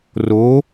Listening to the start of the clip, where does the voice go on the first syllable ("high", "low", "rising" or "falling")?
rising